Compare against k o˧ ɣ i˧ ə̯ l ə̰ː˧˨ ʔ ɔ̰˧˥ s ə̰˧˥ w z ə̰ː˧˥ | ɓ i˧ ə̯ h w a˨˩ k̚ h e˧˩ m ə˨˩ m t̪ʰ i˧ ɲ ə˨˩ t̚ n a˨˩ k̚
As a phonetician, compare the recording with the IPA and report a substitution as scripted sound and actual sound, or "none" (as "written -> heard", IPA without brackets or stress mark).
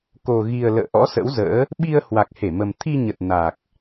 none